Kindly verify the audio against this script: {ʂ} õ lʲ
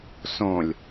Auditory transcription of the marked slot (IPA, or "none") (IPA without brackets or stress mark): s